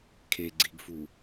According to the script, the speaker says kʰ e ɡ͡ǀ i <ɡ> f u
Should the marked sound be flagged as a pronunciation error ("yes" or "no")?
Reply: no